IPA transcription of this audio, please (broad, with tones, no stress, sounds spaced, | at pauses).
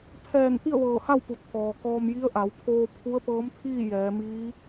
pʰ ɛː˧˩ n t̪ i˥˨ ə̯ ʋ ɤː˧˩ h a˥˨ w p u˩ t̪ʰ ɔː˩ k ɔː˧ m j i˧˥ ə̯ ʔ a˩˧ w pʰ oː˧ pʰ u˧˥ ə̯ p ɤː˧˥ m t̪ʰ iː˥˨ j ɛː˩˧ m iː˧˥